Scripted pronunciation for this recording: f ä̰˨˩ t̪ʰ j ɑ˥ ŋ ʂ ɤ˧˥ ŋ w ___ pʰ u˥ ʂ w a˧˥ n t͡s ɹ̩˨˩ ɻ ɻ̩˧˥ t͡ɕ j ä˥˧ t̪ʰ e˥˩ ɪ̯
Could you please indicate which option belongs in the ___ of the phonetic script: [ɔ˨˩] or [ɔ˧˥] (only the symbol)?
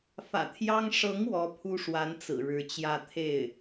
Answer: ɔ˧˥